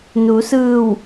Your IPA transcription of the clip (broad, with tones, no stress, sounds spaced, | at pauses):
n u˩˧ s ɯː˧˩ w